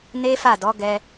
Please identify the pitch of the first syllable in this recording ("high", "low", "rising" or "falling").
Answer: high